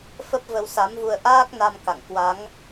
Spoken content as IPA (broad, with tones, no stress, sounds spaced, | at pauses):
f ə˦˥ p̚ v ə˧ w s a˨˦ m v u˧ ə̯ ʔ aː˦˥ k̚ n a˧ m k a̰˧˨ ŋ k w a˨˦ ŋ